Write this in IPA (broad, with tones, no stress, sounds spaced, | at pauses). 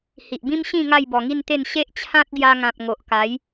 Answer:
h i˨ ʔ b ĩ˦ m ɕ ĩ˥˧ ŋ a˥˧ j b ɔ˨˩ ŋ i˥˧ n t̪ e˥˧ n ɕ e˦ ʔ t͡ɕʰ ã˦ t̚ ɡ j a˧ ŋ ã˨ p̚ ŋ o˨ ʔ k a˨˦ j